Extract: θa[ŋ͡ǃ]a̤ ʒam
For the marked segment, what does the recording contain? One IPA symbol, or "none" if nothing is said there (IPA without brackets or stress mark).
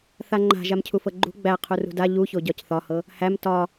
ŋ͡ǃ